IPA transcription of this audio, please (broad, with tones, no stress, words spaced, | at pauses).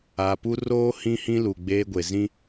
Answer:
a˨pu˦roː˦ hĩ˦hĩ˦lu˨ ɡ͡beː˦ɡʷe˨ zĩ˦